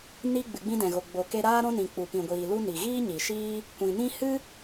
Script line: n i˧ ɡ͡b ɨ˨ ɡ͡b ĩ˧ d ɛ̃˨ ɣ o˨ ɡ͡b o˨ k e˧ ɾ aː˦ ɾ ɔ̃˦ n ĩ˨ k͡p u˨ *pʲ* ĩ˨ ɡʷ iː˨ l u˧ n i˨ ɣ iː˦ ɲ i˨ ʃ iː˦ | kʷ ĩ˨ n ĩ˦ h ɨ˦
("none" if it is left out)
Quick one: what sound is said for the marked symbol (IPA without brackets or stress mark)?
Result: p